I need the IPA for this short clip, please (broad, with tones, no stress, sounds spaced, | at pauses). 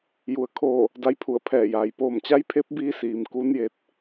j u˩ ə̯ kʰ oː˧˩ | d a˧˥ j pʰ u˧˩ ə̯ pʰ ɛː˧˩ j aː˩ j p oː˧˩ m t͡ɕ a˧˥ j pʰ e˧˥ p̚ b iː˧ s iː˩ m k u˧˥ n j e˧ t̚